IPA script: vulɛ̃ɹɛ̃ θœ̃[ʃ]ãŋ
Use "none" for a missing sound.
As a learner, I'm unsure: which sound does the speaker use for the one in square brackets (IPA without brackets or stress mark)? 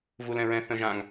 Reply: ʒ